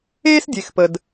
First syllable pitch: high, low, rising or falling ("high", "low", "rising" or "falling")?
high